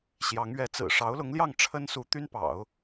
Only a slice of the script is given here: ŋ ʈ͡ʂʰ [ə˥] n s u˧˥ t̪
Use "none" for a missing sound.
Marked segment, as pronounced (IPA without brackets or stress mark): ə˥